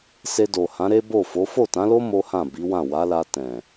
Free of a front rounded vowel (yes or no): yes